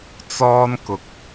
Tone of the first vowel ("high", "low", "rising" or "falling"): high